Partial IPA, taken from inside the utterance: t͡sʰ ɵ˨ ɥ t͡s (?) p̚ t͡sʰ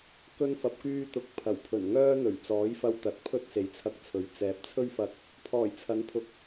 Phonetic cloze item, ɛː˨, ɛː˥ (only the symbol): ɛː˨